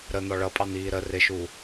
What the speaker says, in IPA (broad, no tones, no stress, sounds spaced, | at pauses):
ɾ ə n̪ ɔ ɭ ʌ pʼ ɑ n̪ iː ɾ ə r ɪ ʃ u